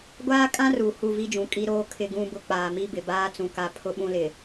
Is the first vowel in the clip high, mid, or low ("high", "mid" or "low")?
low